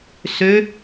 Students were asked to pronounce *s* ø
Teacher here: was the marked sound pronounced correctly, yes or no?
yes